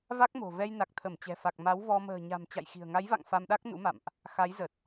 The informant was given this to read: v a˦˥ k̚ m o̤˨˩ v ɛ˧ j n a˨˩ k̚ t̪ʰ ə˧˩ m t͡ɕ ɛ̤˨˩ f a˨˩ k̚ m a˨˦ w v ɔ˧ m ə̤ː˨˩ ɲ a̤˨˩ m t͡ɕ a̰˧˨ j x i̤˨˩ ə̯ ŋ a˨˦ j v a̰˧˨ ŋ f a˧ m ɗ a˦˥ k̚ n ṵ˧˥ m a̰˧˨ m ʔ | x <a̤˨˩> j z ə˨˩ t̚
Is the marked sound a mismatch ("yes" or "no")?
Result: yes